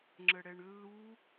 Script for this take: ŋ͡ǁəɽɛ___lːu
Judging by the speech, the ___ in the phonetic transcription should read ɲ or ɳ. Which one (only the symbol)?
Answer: ɳ